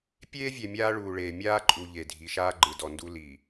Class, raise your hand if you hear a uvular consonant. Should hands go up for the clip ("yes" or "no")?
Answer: no